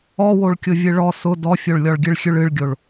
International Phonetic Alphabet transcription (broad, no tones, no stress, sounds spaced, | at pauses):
ɔ w o ɭ kʲ ʊ vʲ ɨ ɭ ɔ s ʊ d ɔ fʲ o ɭ lʲ ɔ ɭ ɡʲ ɨ ɭ xʲ ʉ ɭ ɨ ɭ ɡʲ o ɭ